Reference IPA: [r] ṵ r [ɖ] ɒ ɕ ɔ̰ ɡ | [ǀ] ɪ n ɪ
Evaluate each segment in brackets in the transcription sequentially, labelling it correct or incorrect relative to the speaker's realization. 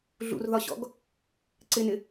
incorrect: ɮ, incorrect: ð, correct

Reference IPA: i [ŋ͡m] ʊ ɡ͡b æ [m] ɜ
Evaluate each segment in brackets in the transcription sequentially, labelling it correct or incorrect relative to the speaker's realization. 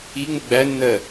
correct, incorrect: nː

